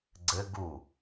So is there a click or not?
yes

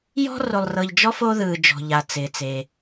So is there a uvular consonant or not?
no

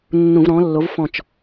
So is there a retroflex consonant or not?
no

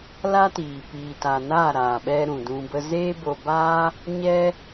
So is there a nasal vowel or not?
yes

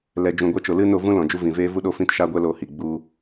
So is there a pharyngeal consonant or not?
no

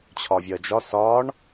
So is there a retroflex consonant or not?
yes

